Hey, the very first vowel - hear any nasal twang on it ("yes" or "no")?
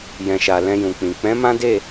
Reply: yes